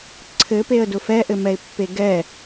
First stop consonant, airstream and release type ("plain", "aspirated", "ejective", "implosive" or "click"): click